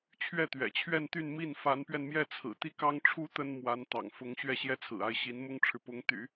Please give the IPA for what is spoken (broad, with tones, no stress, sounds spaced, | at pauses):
t͡ɕʰ ɥ ɛ˥˩ t̪ ɥ ɛ̰˨˩ t͡ɕʰ ɥ ɛ˥˧ n t̪ y˥˧ n m i˥˩ n f a˧˥ n p ɥ ɛ˧ n m j ɛ˥˩ t͡sʰ ɹ̩˨˩ t̪ i˥˩ k ɑ˥ ŋ ʈ͡ʂʰ u˧˥ t̪ ə˥ n m w a˧˥ n t̪ ɑ̰˨˩ ŋ f ʊ˧˥ ŋ ɕ ɥ ɛ˥˩ ɕ j ɛ˥ t͡sʰ ɹ̩˨˩ a˥˩ ɪ̯ ɕ i˧˥ n m ʊ˥ ŋ ʈ͡ʂʰ ɻ̩˨ p ʊ˧˥ ŋ t̪ y̰˨˩˦